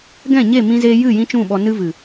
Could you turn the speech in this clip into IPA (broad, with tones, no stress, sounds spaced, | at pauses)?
ɡ ɛ̃˦˨ ɲ e˦˨ m ĩ˧ z eː˧ j ɨ˦˨ j ĩ˦ t͡ʃ ũ˦˨ ɓ ɔ˧ n ɨ˧ v ɨ˨